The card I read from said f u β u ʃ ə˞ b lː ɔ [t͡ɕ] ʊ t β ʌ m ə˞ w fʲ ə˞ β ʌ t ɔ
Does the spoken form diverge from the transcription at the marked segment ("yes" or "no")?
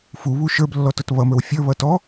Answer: yes